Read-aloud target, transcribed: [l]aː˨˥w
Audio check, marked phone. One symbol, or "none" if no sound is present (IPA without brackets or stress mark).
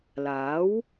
l